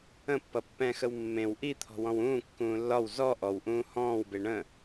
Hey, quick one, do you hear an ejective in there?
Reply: no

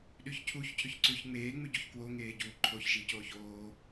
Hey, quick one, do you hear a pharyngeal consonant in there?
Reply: no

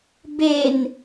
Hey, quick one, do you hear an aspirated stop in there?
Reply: no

